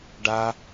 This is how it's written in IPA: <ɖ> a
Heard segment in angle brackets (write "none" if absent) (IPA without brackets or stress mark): ɖ